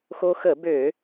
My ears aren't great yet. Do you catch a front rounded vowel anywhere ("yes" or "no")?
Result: yes